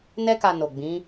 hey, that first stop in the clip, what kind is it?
plain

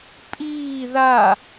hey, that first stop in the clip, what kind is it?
ejective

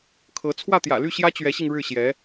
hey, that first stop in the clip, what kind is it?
aspirated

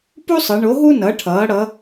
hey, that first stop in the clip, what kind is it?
plain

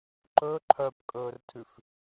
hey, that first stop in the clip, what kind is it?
click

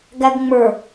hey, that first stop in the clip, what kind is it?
plain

